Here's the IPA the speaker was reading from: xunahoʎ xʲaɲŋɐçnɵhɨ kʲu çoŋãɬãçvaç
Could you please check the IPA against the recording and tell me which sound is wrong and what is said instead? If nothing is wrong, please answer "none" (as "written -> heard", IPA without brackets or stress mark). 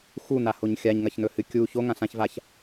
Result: ʎ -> ɲ